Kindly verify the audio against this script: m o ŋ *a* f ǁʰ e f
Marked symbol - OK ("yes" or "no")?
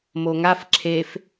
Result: yes